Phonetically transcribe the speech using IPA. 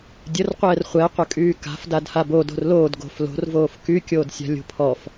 dʲ ə r qʷ ɛː r χʷ ɛ qʷ ə kʼ yː k a̤ f d a d h a b o d o̤ r l oː d ɡ o̤ f l o̤ r v oː f k y kʲ oː d sʲ a̤ lʲ o̤ pʰ ɔ f

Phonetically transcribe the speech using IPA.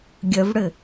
ɡʲ ə v ɽ ɘ

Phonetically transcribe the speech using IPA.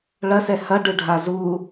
ɭ ɐ s ɛ h ɐ ɖ ɨ ɖʱ a z u

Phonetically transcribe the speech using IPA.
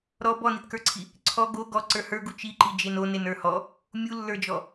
ɾ ɔ b ɔ n i t k ə˞ ǀʰ i | ǀʰ ɔ ɡ o ɡ ɔ ǀ ə˞ h ə˞ ɡ u t͡ʃ i ǃ i d͡ʒ e n o n e n ə˞ h ɔ | mʲ u lː ə˞ d͡ʒ ɔ

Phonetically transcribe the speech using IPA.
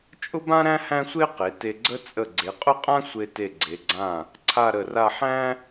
t͡ʃʼ ʊ˥ b ã˥ ɾ æ̃˥ h æ̃˥ sʷ e˥ q e˩˧ t e˧ ɡ͡ǀ ə˥ t͡sʼ ə˧˩ ɡ͡ǀ e˩˧ qʼ ʊ˥˧ qʼ ã˥ sʷ e˧ t e˧˩ ɡ͡ǀ e˩˧ ɡ͡ǀ ã˧˩ | ǀʰ a˥˧ ɾ ə˧˩ r a˥˧ ħ æ̃˥

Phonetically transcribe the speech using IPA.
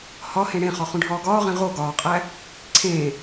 h ɒ h ẽ ɽ ẽ χ ɒ χ ũ ɖʱ ɒː ɡ ɒː ʁ ẽ ʁ o ɡ ɒː qʼ æ | ǀʰ ẽː

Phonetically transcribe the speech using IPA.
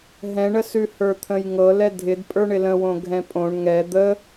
ɦ ɛ̃ ɳ ə s ʉ h ə˞ t̪ʰ ə̃ j ŋ ɤ l ɛ dʱ ɪ d pʼ ə˞ ɳ ɪ l ə̃ w õ ɡʱ ɛ̃ pʼ õ ɳ ŋ ɛ d̪ ə

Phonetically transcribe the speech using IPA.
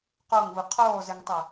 q o ŋ v ɯ qʰ oː z e ŋ tˤ ɛ

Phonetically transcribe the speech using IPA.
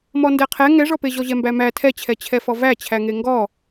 m ɔ n d ɛ qʰ ɛ ŋ ɛ ʐ ɔ p e ʑ ɔ ʑ ɛ m b æ m æ tʰ ɛ t͡ɕʰ ɛ t͡ɕʰ ɛ f ɔ v æ t͡ɕʰ æ ŋ e ŋ ɡ ɔ

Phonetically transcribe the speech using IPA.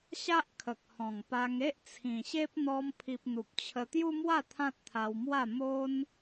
ɕ a˦ ʔ kʰ ə˨ k̚ h ɔ̃˨˩ ŋ p a˧ ŋ e˦ ʔ t͡sʰ ĩ˨˩ ɕ e˦ p̚ n̪ ɔ˧ m pʰ i˨ p̚ n̪ u˨ p̚ t͡ɕʰ ə˧ t̪ j u˦ m w a˥˧ t̪ʰ ã˦ t̚ t̪ʰ a˧ w m w a˥˧ m o˦ n

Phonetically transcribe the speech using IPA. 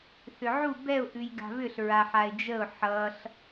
θ ʏ ʕ u b ɛ ʊ̯ ʔ ʉ j ɡ a̤ β ʏ ɬ ɹ a ħ a ɪ̯ d͡ʒ ə ʊ̯ ħ ʌ ɬ

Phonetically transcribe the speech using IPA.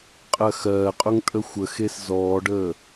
qʼ ɜ x ɜː qʼ ʊ ŋ tʼ ə xʷ ə x e s z ɔː ɖ əː

